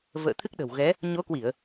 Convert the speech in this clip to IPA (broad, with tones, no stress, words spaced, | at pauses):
və̰ː˧˨ t̪ʰɨ˦˥k̚ɗə̤˨˩w ɣɛ˨˦ | ɲo˨˦kwi˧˩˨ə̯